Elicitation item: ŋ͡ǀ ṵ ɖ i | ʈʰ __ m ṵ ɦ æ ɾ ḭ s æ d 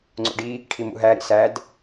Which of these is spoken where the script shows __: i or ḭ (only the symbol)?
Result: i